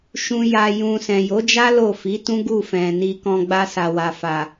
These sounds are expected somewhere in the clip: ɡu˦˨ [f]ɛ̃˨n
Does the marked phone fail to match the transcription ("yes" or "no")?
no